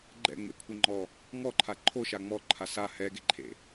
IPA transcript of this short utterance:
ɡ͡ǃ ɛ̰ ŋ͡m ḛ kʷʰ ɪ ŋ͡ǃ ɔ | ŋ ɔ ǃʰ a ǃʰ o ʃ a ŋ͡m ɔ ǃʰ a s a h ɛ ɡ e ǃʰ ḛ

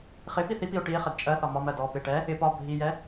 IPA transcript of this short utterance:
χ ɪ p i θ i p i o̯ ʈ i e̯ χ ɛ d t͡ʃʼ ɜ θ ɒ m ɒ m ɜ d ɔ p ɪ ʈ ɛ | ɪ p ɒ bʱ i j ɛ

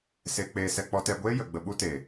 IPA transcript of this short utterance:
s e˧ k͡p eː˧ s ɛ˧ k͡p ɔ˧ t ɛ˧ ɡʷ eː˦ j ə˨ ɡ͡b ə˧ ɓ u˦ t e˨

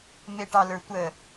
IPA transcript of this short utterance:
m e ʈ ɑ l ə˞ tʷ ə

